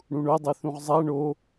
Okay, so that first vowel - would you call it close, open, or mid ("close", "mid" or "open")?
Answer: close